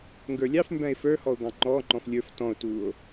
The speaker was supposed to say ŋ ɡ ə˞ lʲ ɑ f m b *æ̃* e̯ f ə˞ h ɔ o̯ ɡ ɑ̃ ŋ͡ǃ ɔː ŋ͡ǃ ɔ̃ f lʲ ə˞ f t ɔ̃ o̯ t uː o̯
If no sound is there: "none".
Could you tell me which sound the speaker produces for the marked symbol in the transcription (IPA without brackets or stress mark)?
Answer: æ̃